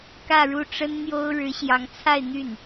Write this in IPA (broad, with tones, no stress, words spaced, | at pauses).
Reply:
kä˥˧ɻu˥˩ ʈ͡ʂə˥nn̪jo˥ʊ̯ ɻɻ̩˧˥ɕjɑ˧˥ŋt͡sʰa˥˧ɪ̯ n̪y˥˩n